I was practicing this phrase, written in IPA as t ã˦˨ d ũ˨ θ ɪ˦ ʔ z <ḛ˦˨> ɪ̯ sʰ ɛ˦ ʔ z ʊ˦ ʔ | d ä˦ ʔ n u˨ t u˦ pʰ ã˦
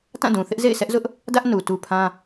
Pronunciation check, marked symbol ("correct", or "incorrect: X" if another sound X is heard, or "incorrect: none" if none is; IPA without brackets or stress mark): correct